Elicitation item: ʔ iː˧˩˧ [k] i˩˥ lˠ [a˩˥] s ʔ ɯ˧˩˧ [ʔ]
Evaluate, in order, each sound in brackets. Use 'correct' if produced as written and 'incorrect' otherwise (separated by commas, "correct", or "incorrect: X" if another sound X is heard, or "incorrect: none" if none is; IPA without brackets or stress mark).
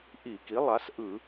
correct, correct, incorrect: none